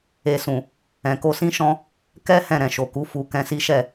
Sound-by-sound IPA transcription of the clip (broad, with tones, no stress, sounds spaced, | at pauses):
e˨ s ũ˨ | ɛ̃˨ k o˧ s ĩ˦ ʃ ɔ̃˦ | k ɛ˦ h ɛ̃˦˨ ɾ ɛ̃˨ ʃ o˨ k u˨˦ f u˧ k ɛ̃˧ s i˦ ʃ ɛ˦˨